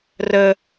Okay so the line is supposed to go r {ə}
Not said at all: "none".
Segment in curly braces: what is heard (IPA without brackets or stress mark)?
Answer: ə